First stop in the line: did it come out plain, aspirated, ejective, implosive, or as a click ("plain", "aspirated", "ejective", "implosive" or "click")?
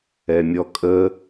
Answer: ejective